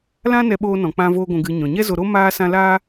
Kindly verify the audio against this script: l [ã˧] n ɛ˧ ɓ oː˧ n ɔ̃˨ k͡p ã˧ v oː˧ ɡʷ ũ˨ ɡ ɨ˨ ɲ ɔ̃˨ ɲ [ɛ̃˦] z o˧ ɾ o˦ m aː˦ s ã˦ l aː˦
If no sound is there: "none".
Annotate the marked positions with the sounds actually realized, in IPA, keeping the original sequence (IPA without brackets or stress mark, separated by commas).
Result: ã˦, ɛ˦